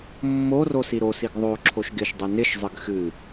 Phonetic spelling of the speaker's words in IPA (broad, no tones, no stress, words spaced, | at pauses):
mːo rosiɾosiɡ ðˤo ǁʰoʃɡɪʃdˤɨ nɪʃzˤɨɡ xɨ